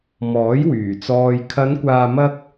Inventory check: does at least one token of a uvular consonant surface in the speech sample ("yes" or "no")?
no